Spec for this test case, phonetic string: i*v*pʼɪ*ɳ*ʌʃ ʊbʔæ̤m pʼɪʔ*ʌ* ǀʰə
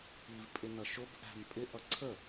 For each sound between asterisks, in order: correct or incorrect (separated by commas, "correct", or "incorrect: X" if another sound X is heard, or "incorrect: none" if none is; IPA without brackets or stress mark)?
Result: correct, incorrect: n, correct